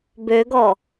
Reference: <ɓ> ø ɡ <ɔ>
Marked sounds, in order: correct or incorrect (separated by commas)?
incorrect, correct